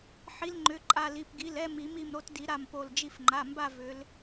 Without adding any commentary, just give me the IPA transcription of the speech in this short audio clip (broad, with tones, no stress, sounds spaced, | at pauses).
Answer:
ħ i˨˦ l ŋ͡ǃ ʏ˩˧˩ ǃʼ a˧˩ l i˩˧˩ p ɡ i˩˧˩ l ɛ˥˧ m i˨˩˦ m i˧˩ m ɾ o˨˦ t d i˨˩˦ ɾ a˧˩ m p o˧˩ l d͡ʒ i˧˩ f ŋ͡ǃ a˩˧˩ m b a˥˧ v ʏ˨˦ l